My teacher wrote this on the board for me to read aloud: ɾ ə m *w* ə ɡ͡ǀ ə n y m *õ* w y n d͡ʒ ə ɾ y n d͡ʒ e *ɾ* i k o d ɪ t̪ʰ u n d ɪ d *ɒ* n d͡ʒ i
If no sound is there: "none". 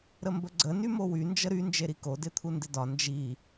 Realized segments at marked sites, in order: b, o, ɾ, ɒ

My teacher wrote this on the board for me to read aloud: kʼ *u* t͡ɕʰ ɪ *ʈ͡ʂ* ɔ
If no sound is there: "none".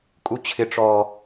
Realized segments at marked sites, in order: u, ʈ͡ʂ

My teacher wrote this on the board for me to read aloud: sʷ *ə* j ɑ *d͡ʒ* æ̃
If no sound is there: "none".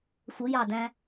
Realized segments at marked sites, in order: ə, d

